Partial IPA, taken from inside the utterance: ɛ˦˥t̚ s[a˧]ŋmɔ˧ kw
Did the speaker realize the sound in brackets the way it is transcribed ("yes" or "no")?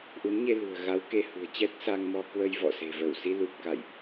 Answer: yes